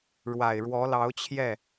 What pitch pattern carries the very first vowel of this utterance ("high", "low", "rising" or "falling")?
low